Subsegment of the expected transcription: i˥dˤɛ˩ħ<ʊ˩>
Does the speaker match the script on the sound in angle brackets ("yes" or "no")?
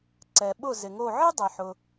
yes